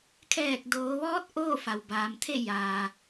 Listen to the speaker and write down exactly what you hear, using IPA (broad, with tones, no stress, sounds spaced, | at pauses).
kʰ ɛː˧˩ k̚ d oː˩˧ ʋ ɔː˧˥ t̚ ʔ oː˥˨ f a˩ w b aː˩˧ m t̪ʰ e˥˨ j aː˩